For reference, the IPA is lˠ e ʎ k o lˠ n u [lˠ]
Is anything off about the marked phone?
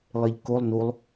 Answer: no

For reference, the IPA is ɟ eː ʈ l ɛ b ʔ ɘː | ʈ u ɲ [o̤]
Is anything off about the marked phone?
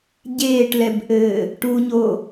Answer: yes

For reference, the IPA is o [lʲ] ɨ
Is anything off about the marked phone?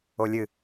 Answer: no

